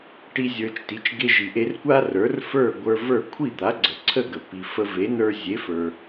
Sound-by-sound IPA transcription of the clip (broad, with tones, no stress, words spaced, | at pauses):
ʈi˧ zʲə˞˧t͡ʃti˩˥t͡ʃ ɡe˧ʒi˩ʔe˧rkʷa˥ rə˞˩˥rfə˞˥˩ ɡʷə˞˧və˞˥˩ kʷʰi˥˩d̪a˩˥ɡ͡ǀə˩ ǀʰə˥˩ɡə˩ pi˩ fə˧ve˩˥ nə˞˧zʲe˩˥fə˞˩